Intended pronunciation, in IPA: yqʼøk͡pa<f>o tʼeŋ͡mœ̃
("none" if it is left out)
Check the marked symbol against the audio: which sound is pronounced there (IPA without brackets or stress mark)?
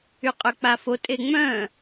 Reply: f